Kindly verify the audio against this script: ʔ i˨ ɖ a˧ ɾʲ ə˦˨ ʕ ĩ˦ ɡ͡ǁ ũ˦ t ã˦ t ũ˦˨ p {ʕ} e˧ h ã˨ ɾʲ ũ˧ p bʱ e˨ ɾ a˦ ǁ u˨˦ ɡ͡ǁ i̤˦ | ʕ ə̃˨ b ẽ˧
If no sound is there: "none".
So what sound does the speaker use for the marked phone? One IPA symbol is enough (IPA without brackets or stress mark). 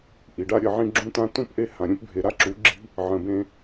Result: ʔ